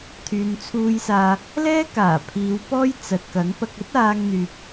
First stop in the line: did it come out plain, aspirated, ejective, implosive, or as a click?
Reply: aspirated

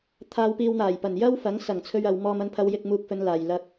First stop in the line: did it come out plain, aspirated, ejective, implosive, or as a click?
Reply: aspirated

